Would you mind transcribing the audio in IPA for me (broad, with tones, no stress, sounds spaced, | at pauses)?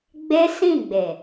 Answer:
ɡ͡b e˦ s ĩ˦˨ ɡ͡b e˨